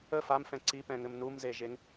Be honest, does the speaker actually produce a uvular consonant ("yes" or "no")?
no